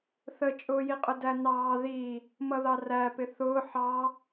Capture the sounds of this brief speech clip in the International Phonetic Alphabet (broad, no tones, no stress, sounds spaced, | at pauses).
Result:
θ ə t͡ʃʼ ʊː j i qʼ ʊ d æ n ɑː ð i | m ʌ ð ɑ r æ p ɪ θ ʊː ħ ɑ